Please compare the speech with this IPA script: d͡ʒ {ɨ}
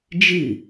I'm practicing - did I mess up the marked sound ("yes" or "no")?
no